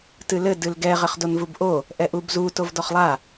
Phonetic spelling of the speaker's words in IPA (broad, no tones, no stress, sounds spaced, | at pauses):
t ɨ l ɘ d ɨ l ɡ ɛ ʁ ɘ χ d o n v u b ʔ o | ʔ ɛ ʔ u b z u t o v d ɔ χ lˠ a